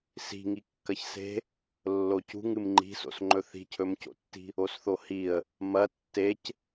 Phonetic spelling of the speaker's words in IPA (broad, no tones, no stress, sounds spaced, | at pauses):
s i̤ ŋ i kː ɐ ç s e̤ | lː o c ṳ ŋ ɨ m ŋ͡ǃ i̤ s o̰ s ŋ͡ǃ ɵ θ i̤ cʰ ɵ m c o̰ tː i̤ | o s θ o h i ə̯ | m ɐ tː e c